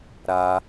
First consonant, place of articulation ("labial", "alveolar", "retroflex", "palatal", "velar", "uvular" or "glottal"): alveolar